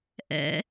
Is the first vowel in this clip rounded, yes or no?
no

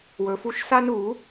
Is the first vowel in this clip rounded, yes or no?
yes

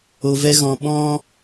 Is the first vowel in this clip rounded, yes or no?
yes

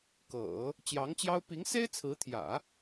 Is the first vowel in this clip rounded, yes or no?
no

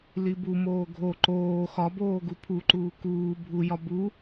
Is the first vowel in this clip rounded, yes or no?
no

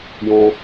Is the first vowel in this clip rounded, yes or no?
yes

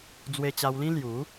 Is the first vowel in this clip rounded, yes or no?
no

